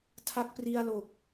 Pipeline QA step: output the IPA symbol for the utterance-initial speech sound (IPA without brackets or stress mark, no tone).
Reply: tʰ